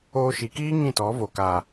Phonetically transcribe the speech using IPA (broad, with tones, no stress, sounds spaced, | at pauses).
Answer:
oː˧ ʃ i˨ k iː˦ ŋ ĩ˦˨ t ɔ˨˦ v o˨ k aː˨